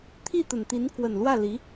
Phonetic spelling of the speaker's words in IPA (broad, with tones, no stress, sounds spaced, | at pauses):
t̪ʰ i˥˩ t̪ ə˨˩ n t̪ i˧˥ n k w ə˨˩ n l w ä˥˩ l i˧˥